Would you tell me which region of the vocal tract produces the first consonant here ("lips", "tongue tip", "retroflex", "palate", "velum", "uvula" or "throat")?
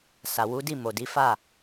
tongue tip